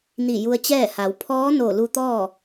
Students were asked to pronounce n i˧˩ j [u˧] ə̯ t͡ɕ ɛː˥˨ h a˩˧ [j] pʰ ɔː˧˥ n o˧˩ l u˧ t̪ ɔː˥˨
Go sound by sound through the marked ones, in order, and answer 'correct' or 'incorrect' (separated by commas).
correct, incorrect